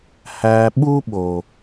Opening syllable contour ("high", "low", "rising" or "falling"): low